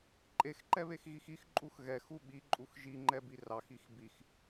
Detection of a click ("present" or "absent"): present